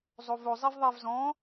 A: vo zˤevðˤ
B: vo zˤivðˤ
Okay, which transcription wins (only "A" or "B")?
B